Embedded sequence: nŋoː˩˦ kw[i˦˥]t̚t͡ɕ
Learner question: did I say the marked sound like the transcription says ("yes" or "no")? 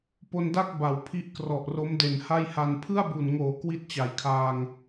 no